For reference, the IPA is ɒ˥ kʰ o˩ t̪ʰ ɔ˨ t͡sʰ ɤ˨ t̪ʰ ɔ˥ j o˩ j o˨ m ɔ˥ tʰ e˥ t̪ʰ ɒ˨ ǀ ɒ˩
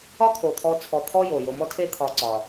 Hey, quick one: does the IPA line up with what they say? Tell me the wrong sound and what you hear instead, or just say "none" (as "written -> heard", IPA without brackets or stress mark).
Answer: ɤ˨ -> ɔ˨